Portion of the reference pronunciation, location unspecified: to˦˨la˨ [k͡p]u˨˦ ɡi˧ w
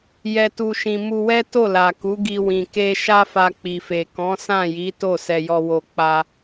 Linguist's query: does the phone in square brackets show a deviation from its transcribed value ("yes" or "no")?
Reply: yes